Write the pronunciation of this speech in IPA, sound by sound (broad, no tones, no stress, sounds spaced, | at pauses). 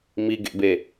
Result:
m i ɡ ḛ b e